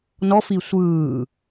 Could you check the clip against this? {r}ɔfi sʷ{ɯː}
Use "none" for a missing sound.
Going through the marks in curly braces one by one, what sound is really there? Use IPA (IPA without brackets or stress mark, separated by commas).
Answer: n, ɯː